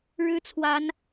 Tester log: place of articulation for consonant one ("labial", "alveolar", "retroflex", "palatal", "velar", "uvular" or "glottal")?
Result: retroflex